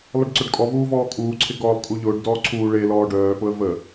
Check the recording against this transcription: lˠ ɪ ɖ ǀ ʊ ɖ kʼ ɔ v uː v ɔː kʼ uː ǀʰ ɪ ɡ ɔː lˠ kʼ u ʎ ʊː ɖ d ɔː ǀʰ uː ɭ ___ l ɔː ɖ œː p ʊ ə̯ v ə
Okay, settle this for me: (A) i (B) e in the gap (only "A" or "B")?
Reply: B